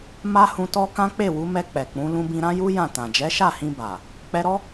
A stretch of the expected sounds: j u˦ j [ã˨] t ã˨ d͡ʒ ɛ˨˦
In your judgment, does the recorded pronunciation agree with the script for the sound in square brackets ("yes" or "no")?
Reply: no